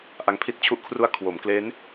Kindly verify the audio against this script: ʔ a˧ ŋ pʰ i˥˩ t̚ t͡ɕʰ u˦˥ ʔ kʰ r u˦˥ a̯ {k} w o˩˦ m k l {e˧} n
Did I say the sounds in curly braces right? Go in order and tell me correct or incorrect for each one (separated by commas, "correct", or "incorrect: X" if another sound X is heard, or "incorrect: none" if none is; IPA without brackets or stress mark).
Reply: incorrect: kʰ, incorrect: e˦˥